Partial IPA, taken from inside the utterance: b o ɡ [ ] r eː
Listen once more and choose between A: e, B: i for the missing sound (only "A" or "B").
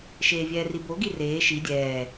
B